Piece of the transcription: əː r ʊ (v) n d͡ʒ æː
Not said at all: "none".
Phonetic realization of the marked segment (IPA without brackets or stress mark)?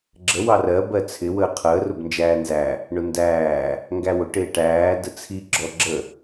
b